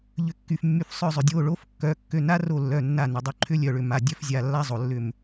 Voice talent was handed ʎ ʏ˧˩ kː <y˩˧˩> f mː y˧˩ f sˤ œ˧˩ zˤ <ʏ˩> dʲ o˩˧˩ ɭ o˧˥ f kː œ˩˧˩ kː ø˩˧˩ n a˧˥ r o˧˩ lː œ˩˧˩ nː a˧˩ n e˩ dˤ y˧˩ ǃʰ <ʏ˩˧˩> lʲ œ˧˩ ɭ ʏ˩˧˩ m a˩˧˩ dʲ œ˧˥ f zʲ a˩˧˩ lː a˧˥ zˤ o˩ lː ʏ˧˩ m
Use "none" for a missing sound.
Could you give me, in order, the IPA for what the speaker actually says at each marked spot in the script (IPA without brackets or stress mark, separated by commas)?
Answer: y˩˧˩, ʏ˩, ʏ˧˥